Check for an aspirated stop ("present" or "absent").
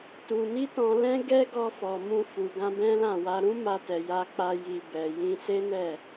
absent